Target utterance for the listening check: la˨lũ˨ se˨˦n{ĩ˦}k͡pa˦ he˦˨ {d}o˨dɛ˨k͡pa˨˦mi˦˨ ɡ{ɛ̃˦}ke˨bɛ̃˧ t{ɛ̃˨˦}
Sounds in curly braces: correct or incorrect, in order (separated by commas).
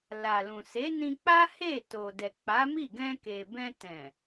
incorrect, incorrect, incorrect, incorrect